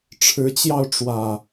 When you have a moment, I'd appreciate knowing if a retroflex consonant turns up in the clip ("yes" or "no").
yes